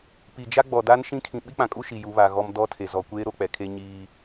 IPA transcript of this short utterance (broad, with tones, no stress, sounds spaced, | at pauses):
p i˨ d͡ʒ a˦ ɡ͡b ɔ˨ d a˦ n ʃ ĩ˦ kʰ ĩ˨ ɓ i˦ k͡p ã˨ kʼ u˦ ʃ i˨ j u˨˦ β a˨ ɣ ɔ˦ m d ɔ˦ tʰ e˨ z ɔ˨ kʷ eː˦ ɾ o˦ k͡p ɛ˨ kʰ e˦ ɲ iː˦